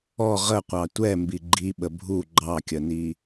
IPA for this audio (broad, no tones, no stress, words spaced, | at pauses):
ɔ ʁəqʷɑ tʷɛmbi ɡ͡ǃiɓə bʱu ɡ͡ǃɑkʲəni